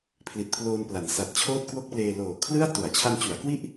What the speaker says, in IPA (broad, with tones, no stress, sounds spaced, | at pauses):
pʰ l i˨˩ t̚ pʰ l oː˧ n p l a˩˦ n s a˨˩ t̚ t͡ɕʰ oː˥˩ t̚ k w o˥˩ k̚ p l eː˧ l oː˨˩ kʰ l ɯ˥˩ a̯ t u˩˦ a̯ t͡ɕʰ a˧ n t͡ɕ u˩˦ a̯ k w i˥˩ ʔ